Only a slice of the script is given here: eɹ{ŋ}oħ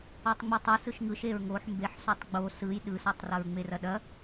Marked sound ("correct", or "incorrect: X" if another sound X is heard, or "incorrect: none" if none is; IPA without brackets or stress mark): correct